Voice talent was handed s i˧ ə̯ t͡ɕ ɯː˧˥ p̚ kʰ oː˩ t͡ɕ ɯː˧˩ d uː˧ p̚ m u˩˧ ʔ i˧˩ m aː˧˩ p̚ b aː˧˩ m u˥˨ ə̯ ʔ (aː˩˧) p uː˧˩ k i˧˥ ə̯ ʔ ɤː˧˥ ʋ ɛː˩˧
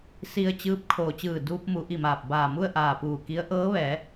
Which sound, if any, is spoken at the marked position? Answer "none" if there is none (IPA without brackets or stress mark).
aː˧˩